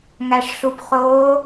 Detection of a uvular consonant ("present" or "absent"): present